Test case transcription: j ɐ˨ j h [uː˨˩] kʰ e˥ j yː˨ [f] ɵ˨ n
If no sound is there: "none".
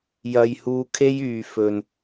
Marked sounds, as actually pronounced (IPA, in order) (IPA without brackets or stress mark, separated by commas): uː˧, f